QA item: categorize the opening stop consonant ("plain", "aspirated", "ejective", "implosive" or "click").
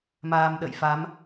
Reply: implosive